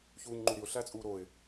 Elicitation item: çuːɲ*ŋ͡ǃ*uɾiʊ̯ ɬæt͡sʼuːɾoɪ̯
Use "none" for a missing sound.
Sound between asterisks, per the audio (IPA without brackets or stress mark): ŋ͡ǃ